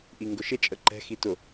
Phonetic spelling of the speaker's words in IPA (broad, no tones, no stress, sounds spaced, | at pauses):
ʔ i ŋ ɡ ʊ ʃ ɪ t͡ʃʼ ə ǃ ɛ̤ x i t ʊ